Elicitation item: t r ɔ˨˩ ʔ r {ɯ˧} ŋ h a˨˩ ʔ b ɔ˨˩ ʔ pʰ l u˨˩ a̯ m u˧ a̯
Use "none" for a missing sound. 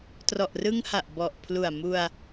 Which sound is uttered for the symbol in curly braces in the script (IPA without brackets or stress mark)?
ɯ˧